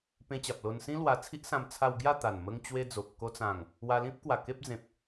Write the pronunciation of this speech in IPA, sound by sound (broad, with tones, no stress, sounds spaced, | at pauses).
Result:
p ẽ˧ t͡ɕ a˨ p̚ l o˧ n s ĩ˦ l w a˧ t͡sʰ i˦ ʔ s ã˧ m t͡sʰ a˧ w ɡ j a˥˧ t̪ a˨˩ n m ə˧ ŋ t͡ɕ w e˦ d͡z o˨ p̚ k o˧ t͡s ã˨˩ ŋ | w a˧ l ĩ˦ p̚ k w a˨˩ k e˦ p̚ d͡z ẽ˨ p̚